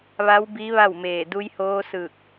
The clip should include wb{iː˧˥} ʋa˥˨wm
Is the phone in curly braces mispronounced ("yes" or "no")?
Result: yes